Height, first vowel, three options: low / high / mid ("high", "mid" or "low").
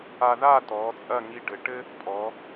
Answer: low